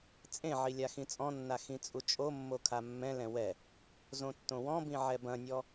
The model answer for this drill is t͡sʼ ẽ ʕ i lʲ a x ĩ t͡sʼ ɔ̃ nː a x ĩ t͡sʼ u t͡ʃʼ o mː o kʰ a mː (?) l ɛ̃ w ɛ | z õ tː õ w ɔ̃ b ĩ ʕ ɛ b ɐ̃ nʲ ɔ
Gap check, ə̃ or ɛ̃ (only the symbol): ɛ̃